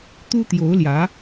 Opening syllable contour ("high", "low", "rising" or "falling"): high